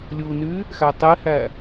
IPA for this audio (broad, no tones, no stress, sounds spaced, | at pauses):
lʲ u n y | x æ tˤ e h æ